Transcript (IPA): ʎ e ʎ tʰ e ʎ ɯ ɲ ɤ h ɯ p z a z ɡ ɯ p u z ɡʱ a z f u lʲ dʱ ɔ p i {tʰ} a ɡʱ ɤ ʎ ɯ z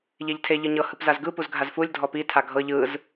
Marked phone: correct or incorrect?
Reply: correct